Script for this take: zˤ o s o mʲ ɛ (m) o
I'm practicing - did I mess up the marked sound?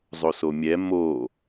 no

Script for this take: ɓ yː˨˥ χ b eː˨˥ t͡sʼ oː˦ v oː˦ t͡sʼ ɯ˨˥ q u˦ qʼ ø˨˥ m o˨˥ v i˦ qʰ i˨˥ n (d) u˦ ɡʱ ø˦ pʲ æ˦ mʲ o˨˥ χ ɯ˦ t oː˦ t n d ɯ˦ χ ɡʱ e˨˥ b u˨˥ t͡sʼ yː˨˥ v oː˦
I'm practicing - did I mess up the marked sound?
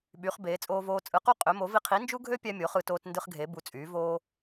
yes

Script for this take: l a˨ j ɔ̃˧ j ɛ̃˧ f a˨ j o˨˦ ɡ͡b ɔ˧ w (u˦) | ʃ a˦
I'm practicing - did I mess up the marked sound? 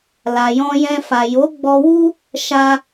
no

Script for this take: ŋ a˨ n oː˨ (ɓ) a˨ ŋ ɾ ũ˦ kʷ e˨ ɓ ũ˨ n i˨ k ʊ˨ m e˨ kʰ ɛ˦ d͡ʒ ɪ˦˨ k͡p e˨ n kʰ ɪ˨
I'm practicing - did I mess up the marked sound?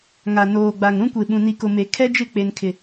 yes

